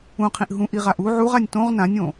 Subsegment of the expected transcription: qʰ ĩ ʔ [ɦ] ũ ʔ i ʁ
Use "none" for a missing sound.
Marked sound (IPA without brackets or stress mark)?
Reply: ɦ